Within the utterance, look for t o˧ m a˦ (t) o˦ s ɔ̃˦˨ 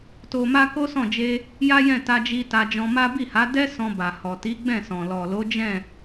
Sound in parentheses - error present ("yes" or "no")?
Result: yes